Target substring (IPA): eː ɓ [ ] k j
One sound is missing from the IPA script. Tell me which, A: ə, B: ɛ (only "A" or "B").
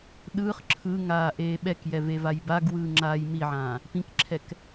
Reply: B